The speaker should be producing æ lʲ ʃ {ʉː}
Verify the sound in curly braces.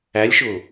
incorrect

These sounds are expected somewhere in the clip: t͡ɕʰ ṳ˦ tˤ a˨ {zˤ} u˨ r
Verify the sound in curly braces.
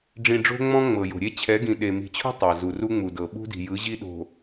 incorrect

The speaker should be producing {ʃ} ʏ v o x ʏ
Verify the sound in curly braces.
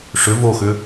incorrect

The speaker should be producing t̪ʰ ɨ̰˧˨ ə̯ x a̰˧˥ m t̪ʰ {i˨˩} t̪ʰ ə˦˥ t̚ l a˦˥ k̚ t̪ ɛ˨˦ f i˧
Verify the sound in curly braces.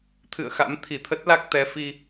incorrect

